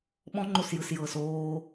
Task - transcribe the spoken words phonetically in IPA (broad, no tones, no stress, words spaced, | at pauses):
ɓɔ̃ŋ͡ǃosjɯsjɤːs oː